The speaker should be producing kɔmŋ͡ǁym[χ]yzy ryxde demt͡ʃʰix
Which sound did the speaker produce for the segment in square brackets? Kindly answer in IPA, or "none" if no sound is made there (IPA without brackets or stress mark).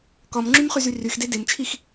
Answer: χ